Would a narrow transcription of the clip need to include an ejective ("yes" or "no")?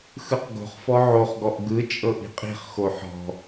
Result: yes